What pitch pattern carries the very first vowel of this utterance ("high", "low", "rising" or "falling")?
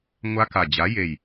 high